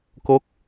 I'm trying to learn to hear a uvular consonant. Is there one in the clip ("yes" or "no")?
no